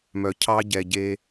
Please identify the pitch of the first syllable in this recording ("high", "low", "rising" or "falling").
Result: low